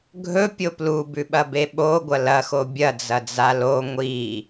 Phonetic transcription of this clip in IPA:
ɡʱɵpʲo plubʉɓɐbe ɓoɡʷɐ lɐxo bʲɐd͡zɐd͡za lo ŋʷi

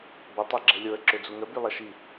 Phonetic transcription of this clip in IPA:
bə tˤeɡ͡ǁɛlʲoə̯ ǁød͡zuŋə bylˠɛʃi

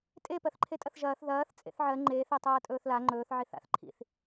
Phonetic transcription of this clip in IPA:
tʼe pɜθǃʰetʼɐθʒɐːθ ðɐːθ t͡sʼḛθʕɜ ŋ͡ǃe θetˤɐːtʼɵːθla ŋ͡ǃɵːθ ʕiθa̰θ ǃʰḭθ

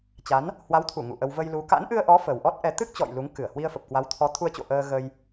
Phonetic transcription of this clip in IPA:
t͡ɕa˨˦n | hwa˨˦wt̪ʰu˧˩ ŋṵ˧˨ʔə˧w və˧jlu˨˦ ka̰˧˥nʔɨ˧ə̯ʔɔ˨˦ fə˨˩wʔɔ˦˥t̚ʔɛ˨˦ t̪ɨ˦˥k̚t͡ɕɔ̰˧˨j lu˨˦ŋkɨ˧˩ə̯ hwi˧ə̯fə˨˩p̚kwa˨˦w t̪ʰɔ˨˦t̪ʰu˧ə̯t͡ɕo̰˧˨ ʔəː˧ɣə˧j

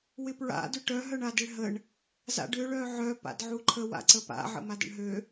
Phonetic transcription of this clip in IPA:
wɪpɹa̰ dʏʈœ ɦœɳadɪɭɦəɳ | za̰ɖʏ ɭœʕœ pa̰dʕuǃʰə wa̰ǀəpa̰ ʕə̰madə̰ɳɦø

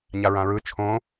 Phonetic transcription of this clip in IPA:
ɲaɹãɹɯ t͡ʃʰõ

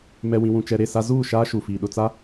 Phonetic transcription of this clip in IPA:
mɛ˨wĩ˨wũ˨ t͡ʃɛ˨ɾe˦˨sa˦ zuː˦˨ʃaː˦ ʃu˨fi˨ɗʊ˨t͡sa˦

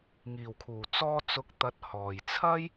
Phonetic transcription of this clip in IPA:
ŋiː˨˩wkʰuː˨˩t͡sɔː˧ t͡sʊ˨˥k̚t̪ɐ˨˥t̚ hɔː˨˩jt͡sʰɐ˥j

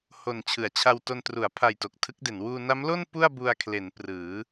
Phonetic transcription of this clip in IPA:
ho˨˩n t͡ɕʰɯ˩˦a̯t͡ɕʰa˧wto˧n tru˩˦a̯pʰa˨˩j to˨˩k̚tʰɯ˦˥k̚de˩˦n wuː˧na˦˥mlo˥˩n pu˥˩a̯bu˧a̯kʰle˩˦n prɯː˩˦

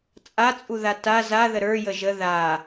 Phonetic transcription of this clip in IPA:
t͡sʼat͡sʼuða ta zaðə ɾə˞jə ʒə ða

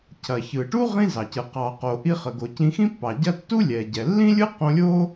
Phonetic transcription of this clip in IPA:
cʰɐ˩çɯ˩ʈu˥ ʁĩ˧zɑ˩cɯ˩ qɑ˩qo˩ ʔi˧χə˩ɡo˩cĩ˧ xĩ˥pːɑ˩ɟɐ˥ tːu˥lʲɛ˩ɟɛ˩ lːĩ˥lʲɯ˥ qõ˧lʲo˥

